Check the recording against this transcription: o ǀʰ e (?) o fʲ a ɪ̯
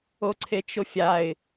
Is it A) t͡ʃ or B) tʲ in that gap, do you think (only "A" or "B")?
A